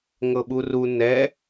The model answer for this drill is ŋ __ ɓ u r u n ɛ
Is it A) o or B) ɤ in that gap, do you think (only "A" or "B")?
B